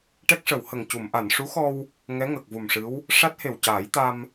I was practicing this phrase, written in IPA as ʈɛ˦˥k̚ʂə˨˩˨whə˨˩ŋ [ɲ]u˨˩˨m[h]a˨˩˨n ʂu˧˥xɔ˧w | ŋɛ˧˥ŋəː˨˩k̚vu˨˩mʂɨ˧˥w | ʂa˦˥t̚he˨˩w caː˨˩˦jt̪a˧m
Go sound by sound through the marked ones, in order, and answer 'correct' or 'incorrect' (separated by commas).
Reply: incorrect, incorrect